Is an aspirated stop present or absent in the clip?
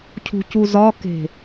present